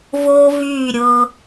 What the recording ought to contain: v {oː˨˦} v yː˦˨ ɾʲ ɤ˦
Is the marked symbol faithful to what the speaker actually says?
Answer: no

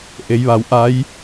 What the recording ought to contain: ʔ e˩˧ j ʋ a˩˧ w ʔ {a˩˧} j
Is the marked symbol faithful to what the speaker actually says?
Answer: no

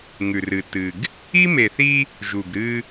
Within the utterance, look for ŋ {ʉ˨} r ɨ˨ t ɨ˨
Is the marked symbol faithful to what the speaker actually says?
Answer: yes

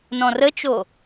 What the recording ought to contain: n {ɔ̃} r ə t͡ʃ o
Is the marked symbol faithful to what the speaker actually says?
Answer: yes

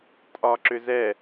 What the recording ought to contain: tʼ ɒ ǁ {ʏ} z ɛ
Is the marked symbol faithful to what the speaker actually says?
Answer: yes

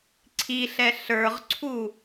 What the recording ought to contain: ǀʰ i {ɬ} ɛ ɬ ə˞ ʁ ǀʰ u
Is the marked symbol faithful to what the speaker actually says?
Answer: yes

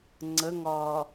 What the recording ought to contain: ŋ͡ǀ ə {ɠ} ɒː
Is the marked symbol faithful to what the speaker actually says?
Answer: no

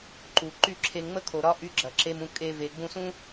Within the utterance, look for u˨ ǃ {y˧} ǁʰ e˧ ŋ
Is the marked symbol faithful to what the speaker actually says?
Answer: no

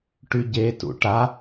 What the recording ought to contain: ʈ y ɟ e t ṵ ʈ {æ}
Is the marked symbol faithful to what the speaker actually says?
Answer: no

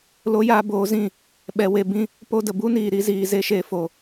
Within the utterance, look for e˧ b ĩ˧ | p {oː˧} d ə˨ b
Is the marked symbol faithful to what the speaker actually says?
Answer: no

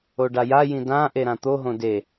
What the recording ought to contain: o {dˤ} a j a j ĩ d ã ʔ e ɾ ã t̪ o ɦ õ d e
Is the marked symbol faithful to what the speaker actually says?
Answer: no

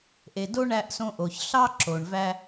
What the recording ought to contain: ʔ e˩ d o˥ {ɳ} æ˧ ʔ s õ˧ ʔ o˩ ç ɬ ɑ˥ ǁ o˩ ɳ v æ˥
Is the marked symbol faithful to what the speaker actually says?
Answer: yes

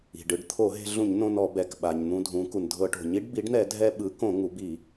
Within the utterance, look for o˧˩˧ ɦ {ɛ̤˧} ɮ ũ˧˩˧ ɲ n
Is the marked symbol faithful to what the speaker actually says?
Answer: no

